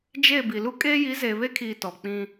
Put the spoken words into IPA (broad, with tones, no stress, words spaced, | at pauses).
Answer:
d͡ʒe˦˨ bi˨lu˦ kʼeː˦ ji˨˦zeː˨βe˦kʰiː˨ tɔ˨ k͡pĩ˦